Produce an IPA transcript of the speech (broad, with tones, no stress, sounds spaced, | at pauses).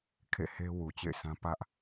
kʰ ḛ˦˨ h e˦ w u˨ t͡ɕ ḛ˦˨ ɪ̯ sʰ ã˦ p ä˦ ʔ